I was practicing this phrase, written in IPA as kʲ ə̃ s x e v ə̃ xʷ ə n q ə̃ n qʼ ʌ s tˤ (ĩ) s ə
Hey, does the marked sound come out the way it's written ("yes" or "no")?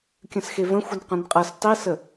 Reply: no